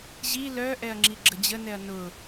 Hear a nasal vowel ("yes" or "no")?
no